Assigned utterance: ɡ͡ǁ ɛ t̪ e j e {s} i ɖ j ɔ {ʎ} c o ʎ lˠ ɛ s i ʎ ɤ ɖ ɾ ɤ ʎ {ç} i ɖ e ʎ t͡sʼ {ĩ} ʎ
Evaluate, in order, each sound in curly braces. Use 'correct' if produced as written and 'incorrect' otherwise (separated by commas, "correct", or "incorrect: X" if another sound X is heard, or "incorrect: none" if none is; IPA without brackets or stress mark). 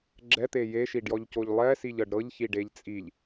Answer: incorrect: ʃ, correct, correct, incorrect: i